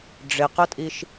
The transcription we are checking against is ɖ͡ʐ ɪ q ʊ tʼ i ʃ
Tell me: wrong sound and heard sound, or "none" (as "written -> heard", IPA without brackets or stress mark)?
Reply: none